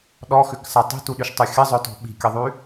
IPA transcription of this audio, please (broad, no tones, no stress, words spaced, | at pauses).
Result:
ɗɔxʏksa tˤi̤tuɗyʃtˤy xʲəzˤœtɔ̤ ɓi̤kʲɐðˤy